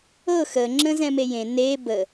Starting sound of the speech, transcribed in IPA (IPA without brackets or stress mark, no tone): ɤ